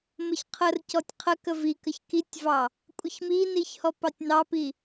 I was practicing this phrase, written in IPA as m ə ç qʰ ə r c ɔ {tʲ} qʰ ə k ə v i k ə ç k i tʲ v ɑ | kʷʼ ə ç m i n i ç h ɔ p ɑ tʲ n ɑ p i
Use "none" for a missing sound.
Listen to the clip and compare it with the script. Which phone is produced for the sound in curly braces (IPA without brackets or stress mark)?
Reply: tʲ